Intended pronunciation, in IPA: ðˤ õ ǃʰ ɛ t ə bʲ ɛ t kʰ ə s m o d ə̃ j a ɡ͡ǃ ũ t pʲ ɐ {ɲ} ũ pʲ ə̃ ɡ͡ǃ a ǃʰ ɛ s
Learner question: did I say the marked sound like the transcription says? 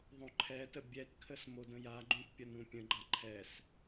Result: no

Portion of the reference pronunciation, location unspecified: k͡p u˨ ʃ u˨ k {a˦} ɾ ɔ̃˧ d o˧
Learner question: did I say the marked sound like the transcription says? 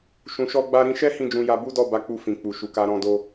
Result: no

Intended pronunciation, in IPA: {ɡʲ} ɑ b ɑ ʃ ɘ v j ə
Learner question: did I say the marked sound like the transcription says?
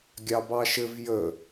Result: yes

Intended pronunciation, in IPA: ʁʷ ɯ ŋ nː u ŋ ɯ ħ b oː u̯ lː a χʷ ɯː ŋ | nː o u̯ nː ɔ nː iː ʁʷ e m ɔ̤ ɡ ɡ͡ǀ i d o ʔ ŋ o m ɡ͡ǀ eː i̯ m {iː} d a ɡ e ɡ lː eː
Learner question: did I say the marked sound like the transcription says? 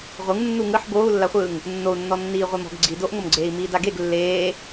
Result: yes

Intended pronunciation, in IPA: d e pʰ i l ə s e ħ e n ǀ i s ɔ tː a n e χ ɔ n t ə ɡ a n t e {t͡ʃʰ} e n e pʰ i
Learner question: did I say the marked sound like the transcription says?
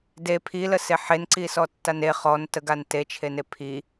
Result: yes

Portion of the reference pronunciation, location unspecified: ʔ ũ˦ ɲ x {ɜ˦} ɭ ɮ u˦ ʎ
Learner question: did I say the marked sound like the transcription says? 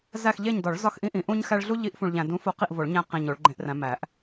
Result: no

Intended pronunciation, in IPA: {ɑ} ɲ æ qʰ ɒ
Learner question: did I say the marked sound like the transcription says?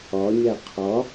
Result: no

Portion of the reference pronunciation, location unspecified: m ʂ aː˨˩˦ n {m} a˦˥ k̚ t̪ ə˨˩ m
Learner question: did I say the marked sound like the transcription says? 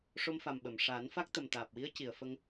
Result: no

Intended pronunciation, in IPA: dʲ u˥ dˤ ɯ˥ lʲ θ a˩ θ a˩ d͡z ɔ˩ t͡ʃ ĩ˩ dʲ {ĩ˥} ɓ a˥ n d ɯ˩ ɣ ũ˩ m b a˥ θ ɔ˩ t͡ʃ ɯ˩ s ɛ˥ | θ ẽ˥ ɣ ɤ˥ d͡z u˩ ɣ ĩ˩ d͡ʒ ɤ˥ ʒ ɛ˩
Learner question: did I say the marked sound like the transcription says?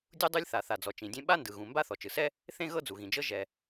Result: no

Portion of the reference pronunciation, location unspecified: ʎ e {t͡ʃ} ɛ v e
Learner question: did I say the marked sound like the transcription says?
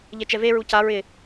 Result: yes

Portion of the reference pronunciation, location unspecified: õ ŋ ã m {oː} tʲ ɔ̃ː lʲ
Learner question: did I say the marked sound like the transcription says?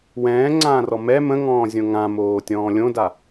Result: yes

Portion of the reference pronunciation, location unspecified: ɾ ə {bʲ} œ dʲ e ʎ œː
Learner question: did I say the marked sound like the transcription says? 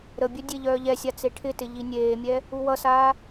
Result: yes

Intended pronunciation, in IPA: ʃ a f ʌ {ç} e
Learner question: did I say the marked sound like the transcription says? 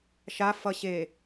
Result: no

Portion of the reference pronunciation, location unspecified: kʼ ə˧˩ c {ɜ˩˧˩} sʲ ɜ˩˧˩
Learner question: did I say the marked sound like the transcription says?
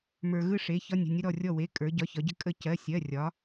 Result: yes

